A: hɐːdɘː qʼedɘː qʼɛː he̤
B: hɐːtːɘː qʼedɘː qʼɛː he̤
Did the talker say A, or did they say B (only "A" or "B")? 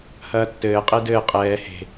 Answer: B